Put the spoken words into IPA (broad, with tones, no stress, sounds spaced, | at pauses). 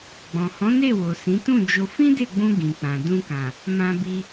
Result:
ɡ͡b ɔ̃˨ h ɔ̃˨˦ n e˦˨ w o˨ s ĩ˨˦ t ũ˦˨ d͡ʒ o˧ f ĩ˦ d e˦˨ ɡ͡b ũ˧ ɡ ĩ˨ k͡p ã˨ d ũ˧ k ã˨ | m ã˧ b i˧